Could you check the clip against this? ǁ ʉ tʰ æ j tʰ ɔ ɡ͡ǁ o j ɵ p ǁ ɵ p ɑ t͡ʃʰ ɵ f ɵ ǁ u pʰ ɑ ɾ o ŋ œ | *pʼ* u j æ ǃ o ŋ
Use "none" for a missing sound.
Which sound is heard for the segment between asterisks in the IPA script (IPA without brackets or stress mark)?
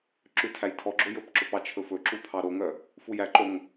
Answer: f